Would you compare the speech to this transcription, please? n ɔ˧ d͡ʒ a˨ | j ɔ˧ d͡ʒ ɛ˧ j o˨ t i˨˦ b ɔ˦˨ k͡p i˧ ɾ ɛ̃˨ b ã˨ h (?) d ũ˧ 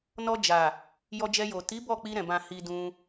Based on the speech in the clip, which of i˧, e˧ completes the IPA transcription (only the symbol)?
i˧